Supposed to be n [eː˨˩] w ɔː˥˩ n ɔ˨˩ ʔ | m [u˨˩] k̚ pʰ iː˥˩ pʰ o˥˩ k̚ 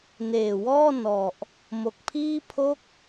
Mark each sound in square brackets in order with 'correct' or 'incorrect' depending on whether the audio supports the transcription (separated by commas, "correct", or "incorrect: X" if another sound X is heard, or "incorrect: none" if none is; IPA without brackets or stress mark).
correct, incorrect: o˨˩